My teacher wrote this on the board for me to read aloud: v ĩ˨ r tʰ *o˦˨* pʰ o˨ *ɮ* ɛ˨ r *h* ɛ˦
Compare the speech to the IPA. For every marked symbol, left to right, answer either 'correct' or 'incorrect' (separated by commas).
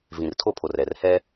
correct, incorrect, correct